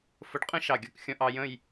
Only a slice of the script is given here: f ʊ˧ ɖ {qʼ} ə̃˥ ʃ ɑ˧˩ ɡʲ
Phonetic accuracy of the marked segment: correct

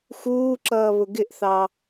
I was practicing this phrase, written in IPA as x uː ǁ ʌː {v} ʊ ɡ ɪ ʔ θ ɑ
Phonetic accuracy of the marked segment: incorrect: β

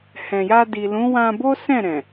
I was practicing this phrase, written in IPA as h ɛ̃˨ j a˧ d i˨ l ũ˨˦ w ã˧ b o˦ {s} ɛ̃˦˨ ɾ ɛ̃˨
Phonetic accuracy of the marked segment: correct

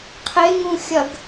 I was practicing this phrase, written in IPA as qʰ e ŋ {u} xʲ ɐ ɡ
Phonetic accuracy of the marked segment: incorrect: ũ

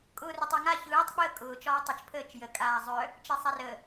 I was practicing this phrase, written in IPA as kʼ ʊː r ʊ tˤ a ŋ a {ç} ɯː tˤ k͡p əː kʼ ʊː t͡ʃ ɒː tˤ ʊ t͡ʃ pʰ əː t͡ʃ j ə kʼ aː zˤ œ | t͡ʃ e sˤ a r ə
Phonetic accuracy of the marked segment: correct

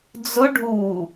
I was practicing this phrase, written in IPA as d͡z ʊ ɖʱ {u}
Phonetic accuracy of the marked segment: correct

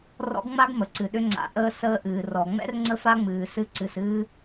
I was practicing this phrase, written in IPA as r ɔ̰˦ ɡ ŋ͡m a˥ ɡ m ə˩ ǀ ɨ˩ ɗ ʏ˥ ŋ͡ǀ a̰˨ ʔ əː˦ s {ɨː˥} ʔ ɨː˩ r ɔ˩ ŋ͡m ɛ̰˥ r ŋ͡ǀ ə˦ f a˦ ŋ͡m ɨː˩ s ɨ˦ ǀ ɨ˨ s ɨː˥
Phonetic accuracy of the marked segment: incorrect: əː˥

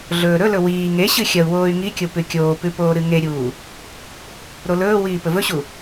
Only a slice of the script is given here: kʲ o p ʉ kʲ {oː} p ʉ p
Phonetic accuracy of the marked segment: correct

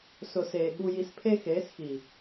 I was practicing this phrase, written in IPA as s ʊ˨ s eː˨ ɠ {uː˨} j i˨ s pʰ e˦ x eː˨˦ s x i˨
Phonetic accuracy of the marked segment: incorrect: u˨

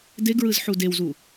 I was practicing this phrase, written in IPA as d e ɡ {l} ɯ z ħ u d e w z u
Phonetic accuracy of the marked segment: incorrect: ɹ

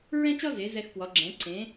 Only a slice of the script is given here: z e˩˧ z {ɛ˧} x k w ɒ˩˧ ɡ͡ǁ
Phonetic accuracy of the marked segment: correct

